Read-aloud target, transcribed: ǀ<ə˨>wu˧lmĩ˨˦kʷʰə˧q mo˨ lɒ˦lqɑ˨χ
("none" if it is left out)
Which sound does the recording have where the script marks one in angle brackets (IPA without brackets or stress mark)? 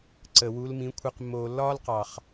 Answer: ə˨